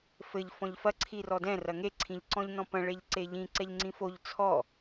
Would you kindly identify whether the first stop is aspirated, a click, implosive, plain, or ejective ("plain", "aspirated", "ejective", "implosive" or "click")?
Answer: click